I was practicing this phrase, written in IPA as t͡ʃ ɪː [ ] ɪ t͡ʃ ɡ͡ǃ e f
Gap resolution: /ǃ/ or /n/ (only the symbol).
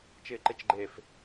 ǃ